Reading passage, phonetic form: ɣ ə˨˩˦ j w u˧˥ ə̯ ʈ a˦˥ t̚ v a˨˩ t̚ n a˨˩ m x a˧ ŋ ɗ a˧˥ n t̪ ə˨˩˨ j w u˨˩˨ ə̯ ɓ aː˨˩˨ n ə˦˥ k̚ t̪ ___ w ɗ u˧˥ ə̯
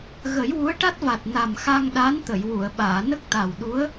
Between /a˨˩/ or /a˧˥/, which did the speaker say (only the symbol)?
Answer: a˨˩